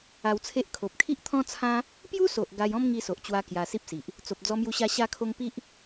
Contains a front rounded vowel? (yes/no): no